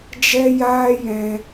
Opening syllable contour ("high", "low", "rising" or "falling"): high